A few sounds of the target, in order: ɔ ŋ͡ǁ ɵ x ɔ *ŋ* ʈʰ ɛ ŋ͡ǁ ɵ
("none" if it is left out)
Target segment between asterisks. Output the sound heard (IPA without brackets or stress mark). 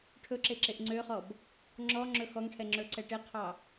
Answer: ŋ